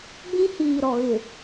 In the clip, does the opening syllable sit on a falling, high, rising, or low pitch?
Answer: high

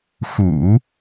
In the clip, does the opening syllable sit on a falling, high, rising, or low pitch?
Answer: low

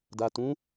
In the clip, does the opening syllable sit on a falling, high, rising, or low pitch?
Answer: low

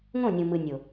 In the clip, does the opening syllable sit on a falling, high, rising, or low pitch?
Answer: falling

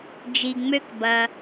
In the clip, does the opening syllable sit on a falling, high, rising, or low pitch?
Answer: low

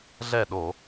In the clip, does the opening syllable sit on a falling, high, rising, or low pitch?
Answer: falling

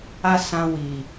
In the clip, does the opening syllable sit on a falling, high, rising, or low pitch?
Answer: high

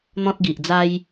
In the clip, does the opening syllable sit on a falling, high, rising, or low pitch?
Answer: high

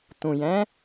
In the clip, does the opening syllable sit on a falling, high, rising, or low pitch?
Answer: low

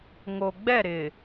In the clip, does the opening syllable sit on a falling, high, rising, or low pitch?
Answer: low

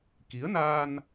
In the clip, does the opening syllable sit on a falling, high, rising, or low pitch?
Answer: rising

